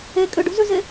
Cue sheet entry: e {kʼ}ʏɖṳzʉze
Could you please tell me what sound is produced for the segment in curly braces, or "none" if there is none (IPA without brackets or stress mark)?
kʼ